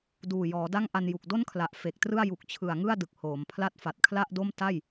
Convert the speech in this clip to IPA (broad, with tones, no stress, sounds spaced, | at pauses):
d uː˨˩ j ɔː˩˦ d a˥˩ ŋ ʔ a˧ n j u˨˩ k̚ d o˥˩ n kʰ l a˨˩ ʔ f e˨˩ k̚ t r ɯ˥˩ a̯ j u˨˩ k̚ t͡ɕʰ ɯ˨˩ a̯ ŋ ɯ˥˩ a̯ d ɯ˨˩ k̚ h oː˩˦ m pʰ l a˦˥ t̚ f a˨˩ t̚ kʰ l a˥˩ ʔ d o˥˩ m t a˥˩ j